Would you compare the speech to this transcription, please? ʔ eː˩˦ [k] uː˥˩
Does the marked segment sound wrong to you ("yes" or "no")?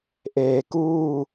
no